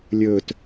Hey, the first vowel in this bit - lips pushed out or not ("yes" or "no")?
yes